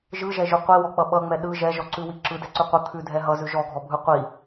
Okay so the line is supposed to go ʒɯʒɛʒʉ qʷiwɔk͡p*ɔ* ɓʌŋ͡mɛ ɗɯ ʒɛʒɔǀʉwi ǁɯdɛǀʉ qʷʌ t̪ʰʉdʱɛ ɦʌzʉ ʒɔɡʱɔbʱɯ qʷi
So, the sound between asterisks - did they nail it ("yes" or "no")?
no